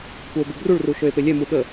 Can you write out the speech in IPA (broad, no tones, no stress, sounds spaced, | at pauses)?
kʷ a o̯ b y b r u ɭ r u ʃ ø e̯ p e lʲ ɛ m u ɠ ə